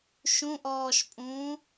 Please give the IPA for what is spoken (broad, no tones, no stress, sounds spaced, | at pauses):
ʃ ũ ʔ ɔː ʃ pʼ ũː